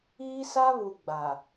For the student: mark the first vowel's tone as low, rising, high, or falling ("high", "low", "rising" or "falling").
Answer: high